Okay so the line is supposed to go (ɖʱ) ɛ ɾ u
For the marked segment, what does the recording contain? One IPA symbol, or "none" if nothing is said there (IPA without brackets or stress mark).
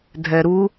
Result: dʱ